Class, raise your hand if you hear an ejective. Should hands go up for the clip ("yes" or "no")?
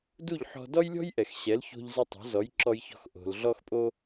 yes